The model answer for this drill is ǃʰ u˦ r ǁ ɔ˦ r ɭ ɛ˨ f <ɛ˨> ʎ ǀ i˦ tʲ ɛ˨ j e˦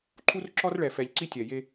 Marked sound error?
no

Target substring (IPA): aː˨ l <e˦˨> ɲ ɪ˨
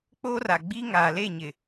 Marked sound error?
no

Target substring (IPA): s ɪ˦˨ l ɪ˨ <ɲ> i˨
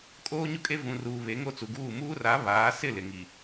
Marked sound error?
yes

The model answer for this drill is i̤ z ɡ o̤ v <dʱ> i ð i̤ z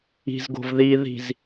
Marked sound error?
yes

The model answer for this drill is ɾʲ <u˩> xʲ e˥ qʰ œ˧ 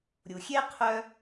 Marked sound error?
no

